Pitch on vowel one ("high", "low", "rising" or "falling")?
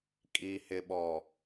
low